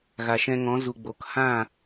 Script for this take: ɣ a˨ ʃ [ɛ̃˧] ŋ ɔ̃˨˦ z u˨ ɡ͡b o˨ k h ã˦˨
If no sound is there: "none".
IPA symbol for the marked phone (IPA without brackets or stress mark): ɛ̃˧